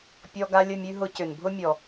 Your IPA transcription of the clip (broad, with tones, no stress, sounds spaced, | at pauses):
pʲ ɔ˧ ɡ a˧ lʲ ə˦˨ mʲ ʉ˧ ɦ ʊ˧ c ʏ˨ n bʱ ʊ˦ mʲ ɔ˨